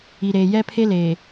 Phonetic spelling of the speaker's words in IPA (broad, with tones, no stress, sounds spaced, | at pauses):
i˨ ɾ eː˨ j ɛ˦ pʰ e˦ l eː˨